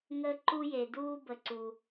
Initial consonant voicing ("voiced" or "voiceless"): voiced